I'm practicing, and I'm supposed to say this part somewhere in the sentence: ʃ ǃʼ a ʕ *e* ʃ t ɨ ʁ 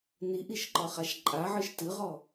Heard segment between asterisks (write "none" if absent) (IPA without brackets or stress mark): ɨ